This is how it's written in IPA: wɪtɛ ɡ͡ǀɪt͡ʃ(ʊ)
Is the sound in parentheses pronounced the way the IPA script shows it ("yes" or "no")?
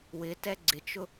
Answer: yes